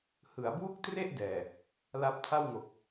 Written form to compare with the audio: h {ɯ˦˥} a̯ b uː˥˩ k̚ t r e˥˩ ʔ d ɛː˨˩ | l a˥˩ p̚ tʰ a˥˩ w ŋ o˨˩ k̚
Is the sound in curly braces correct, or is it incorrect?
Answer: incorrect